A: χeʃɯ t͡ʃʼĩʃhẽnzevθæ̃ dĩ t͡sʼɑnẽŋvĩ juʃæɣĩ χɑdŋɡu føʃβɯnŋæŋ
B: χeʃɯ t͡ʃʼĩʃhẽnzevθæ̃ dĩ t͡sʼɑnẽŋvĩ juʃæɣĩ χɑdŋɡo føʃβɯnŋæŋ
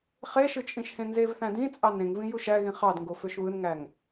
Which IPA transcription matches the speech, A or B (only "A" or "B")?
B